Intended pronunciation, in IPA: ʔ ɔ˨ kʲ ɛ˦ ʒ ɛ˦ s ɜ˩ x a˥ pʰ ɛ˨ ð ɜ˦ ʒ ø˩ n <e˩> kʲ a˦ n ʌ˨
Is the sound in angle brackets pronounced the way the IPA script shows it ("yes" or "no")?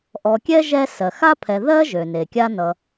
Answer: yes